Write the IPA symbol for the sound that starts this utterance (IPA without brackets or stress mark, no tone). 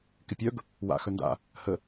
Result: k